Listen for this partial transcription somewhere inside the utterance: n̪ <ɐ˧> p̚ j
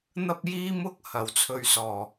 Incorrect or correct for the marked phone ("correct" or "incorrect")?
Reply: correct